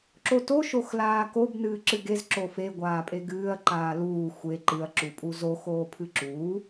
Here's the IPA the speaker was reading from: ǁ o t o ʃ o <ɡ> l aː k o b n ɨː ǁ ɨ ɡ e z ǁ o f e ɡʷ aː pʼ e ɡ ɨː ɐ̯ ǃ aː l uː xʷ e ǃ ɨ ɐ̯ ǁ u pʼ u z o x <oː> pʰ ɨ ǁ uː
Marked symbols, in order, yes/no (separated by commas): no, yes